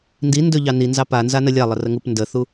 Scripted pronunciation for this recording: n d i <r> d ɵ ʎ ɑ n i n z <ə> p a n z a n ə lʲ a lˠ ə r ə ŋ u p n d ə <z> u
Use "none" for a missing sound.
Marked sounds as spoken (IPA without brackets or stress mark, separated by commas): n, ɑ, θ